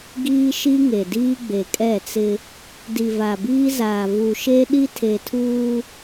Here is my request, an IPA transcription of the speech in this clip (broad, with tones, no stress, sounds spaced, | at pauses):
ɡ iː˦ ʃ i˦ ŋ e˨ d iː˦ ɡ͡b e˨ kʼ ɛ˦˨ t͡s ɪ˦ | d i˨ v a˨ b iː˦ z aː˨ v u˨ ʃ e˦ ɗ i˦ tʰ e˨ tʰ uː˦